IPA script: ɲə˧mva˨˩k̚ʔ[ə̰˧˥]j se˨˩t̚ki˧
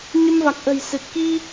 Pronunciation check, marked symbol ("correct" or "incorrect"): incorrect